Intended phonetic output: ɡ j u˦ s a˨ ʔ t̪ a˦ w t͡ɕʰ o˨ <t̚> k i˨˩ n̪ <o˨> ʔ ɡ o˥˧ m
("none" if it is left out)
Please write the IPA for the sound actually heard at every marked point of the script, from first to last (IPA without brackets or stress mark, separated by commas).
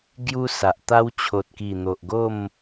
t̚, o˨